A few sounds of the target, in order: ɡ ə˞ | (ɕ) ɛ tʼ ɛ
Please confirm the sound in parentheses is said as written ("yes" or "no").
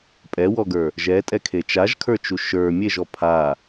no